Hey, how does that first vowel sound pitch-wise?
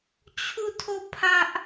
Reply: falling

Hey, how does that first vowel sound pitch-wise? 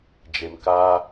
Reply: low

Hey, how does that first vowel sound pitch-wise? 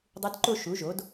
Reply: rising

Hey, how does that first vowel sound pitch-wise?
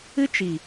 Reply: high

